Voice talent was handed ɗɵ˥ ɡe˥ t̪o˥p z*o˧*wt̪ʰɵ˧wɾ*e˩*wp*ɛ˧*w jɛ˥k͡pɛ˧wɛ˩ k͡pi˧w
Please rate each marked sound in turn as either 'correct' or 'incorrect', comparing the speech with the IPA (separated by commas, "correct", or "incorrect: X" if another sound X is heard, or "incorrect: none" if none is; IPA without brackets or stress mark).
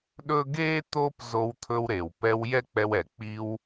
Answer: correct, correct, correct